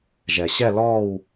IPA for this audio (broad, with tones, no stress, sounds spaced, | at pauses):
ʒ ɛ˩ ɕ ɛ˥˨ l ɔː˥˨ w